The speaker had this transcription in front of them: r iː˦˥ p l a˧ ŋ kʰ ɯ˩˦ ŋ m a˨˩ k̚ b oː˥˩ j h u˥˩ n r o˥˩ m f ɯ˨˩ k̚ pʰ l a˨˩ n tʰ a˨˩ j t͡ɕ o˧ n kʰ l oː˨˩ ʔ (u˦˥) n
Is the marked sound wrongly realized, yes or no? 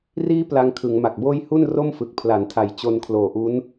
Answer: no